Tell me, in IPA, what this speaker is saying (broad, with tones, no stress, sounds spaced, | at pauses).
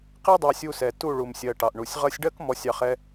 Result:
q i˦ dˤ ɑ˧ sʲ u˧ s ɛ˨ t u˦˨ ɭ u˨ m sʲ ɜ˨ ʈ ɑ˨ ʔ ɳ u˨ sʲ ʁ ʌ˧ sʲ ɖ ɜ˦ k m ɔ˧ sʲ ɑ˧ χ ɛ˦